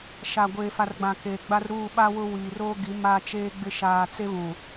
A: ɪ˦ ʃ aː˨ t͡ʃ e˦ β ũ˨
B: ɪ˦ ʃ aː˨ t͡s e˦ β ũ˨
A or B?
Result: B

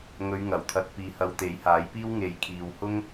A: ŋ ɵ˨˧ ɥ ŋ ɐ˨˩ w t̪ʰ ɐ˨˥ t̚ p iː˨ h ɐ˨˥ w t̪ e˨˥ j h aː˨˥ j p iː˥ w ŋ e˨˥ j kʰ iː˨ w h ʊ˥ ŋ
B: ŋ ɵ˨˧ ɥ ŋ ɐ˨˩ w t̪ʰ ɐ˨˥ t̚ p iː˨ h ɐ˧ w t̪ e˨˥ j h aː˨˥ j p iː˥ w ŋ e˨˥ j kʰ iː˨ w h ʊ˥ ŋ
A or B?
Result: B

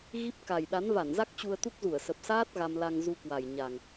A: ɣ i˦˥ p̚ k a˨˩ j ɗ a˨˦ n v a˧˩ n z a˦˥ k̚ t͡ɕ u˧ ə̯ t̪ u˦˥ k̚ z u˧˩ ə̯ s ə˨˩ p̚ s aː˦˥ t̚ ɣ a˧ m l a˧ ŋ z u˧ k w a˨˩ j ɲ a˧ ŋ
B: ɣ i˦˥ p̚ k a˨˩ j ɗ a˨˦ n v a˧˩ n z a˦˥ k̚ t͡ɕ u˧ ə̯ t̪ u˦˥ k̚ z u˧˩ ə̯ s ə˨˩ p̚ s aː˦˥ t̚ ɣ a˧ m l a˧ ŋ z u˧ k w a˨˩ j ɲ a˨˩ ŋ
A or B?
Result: B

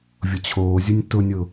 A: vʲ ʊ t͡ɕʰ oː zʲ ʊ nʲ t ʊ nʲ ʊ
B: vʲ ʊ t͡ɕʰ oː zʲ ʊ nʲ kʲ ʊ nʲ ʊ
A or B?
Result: A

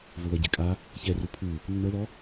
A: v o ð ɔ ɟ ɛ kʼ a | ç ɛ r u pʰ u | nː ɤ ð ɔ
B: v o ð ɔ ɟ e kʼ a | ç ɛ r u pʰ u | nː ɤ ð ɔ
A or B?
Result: B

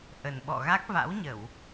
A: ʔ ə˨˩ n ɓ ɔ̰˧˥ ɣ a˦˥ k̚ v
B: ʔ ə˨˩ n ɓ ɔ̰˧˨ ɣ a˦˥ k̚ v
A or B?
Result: B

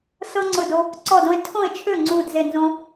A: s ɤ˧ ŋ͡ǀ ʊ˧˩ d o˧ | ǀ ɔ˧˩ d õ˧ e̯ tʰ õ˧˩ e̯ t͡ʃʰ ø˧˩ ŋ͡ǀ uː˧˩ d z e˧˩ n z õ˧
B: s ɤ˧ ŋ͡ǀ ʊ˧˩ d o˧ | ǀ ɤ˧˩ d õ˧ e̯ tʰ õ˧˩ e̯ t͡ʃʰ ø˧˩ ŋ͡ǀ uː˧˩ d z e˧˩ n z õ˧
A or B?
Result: A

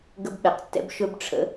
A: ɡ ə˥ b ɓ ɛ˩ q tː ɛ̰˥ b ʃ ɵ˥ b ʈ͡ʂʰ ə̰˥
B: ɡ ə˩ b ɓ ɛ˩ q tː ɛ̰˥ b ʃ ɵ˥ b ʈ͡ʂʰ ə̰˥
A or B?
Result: A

